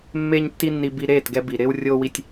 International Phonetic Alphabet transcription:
mː eː˦ ɲ tː i˦ nː i˧ b i˧ ɾ eː˦˨ t ɡ ɛ˧ b i˨ ɾ ɪː˧ w rʲ oː˧ w i˧ tʲ

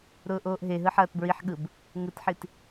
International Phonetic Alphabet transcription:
ɾ ʊː ʔ oː ʔ ɦ e ɦ ɯ ħ ɐː t b ɹ i ħ ɠ ɯ b | ŋ ɯ t ħ i t

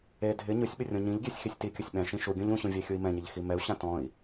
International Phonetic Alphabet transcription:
e dʱ ɪ ɲ ʊ sʲ ɓ ɪ rʲ ɔ̃ ɲ ĩ ʎ ɡʲ ɛ sʲ x i sʲ t i kʲ ʊ sʲ ɓ ɛ̃ ʃ ĩ ʃ u ɡʲ õ ʎ ũ ɕ ũ vʲ ɛ xʲ u i̯ m ɛ̃ ɲ ɪ ʎ x i m ɛ u̯ ɕ ã t ɔ̃ i̯

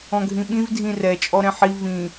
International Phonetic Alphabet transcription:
ɔ̃ ɡʱ ĩ ɓ ĩ v dʱ ĩ r ɛ t͡ʃʼ ɔ ɾ ɛ̃ ħ i v ĩ

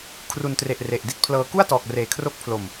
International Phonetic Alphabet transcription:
kʰ r u˨˩ n t r e˨˩ ʔ r e˨˩ ʔ d i˥˩ t̚ pʰ l ɤː˧ k u˥˩ a̯ t ɔː˨˩ k̚ r eː˨˩ kʰ r o˦˥ k̚ pʰ l o˨˩ m

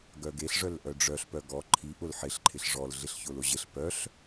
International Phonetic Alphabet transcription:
ɡ œ ɡ e ɬ ʐ œ l ʔ œ ɖ͡ʐ œ ɬ p œ ɡ ɔ ǃʰ i ʔ ʊ l ħ ɪ ɬ ǃʰ ɪ ɬ ʐ ɔ l ɮ ɪ ɬ ç ʊ l ʊ ʑ ɪ ɬ p œ ɬ

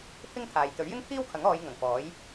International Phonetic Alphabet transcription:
pʰ ɪ˥ ŋ t̪ʰ aː˨ j t̪ ɵ˨˥ ɥ j ɪ˥ ŋ pʰ iː˥ w kʰ ɐ˨˥ ŋ ɔː˨˧ j ŋ ɐ˨˩ ŋ f ɔː˨˥ j

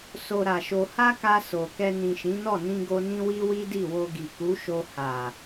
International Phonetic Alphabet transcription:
s o˧ ɾ a˨ ʃ o˧ h a˦ k a˧ s o˨ k ɛ˧ n ĩ˨ ʃ ĩ˨˦ n ɔ˦˨ n ĩ˧ ɡ o˧ n ĩ˦ w i˦ w i˦ d i˦˨ w o˧ ɡ i˨ k u˨˦ ʃ o˧ h a˨

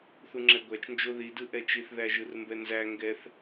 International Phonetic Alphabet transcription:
θ u ŋ͡ǁ ɛ ɡʷ æ t͡ʃ n d͡ʒ o ð i d ɯ ʔ ɛ t͡ʃ i θ ð æ ʒ ɯ r m b ɛ n z æ ŋ ɡ ɛ θ

